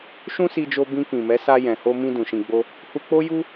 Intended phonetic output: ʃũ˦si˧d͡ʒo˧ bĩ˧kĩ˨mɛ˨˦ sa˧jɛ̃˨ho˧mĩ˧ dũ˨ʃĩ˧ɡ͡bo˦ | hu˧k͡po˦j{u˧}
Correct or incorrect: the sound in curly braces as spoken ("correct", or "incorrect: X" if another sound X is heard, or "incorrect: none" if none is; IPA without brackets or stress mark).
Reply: incorrect: u˦